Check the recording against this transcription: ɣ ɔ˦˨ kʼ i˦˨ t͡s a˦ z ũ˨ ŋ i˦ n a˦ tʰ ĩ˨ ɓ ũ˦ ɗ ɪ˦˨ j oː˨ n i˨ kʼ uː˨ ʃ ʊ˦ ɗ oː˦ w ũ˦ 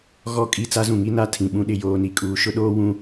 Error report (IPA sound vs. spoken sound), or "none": none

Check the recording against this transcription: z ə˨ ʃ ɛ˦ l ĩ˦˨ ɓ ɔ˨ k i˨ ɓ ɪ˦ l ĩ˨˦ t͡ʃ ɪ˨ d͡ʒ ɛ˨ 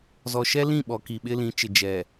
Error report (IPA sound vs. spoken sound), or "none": ə˨ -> ɔ˨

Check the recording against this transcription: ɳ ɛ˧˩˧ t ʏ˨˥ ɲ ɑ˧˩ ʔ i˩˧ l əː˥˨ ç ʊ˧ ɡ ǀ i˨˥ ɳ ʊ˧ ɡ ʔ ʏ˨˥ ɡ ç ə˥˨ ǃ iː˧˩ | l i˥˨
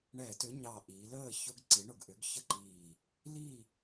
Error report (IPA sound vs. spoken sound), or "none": none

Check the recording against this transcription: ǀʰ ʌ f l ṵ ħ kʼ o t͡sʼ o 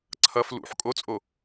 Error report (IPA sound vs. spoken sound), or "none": none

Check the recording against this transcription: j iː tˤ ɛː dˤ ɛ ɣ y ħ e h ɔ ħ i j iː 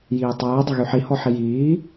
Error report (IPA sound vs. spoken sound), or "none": e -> i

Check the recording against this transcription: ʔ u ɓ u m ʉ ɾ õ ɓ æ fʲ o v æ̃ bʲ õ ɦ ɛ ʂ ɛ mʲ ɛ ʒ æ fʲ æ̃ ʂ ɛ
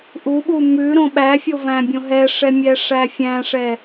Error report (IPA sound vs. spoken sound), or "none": ʒ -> ʂ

